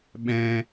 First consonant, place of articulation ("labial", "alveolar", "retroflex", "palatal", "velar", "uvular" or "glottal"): labial